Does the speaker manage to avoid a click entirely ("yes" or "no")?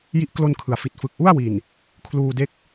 yes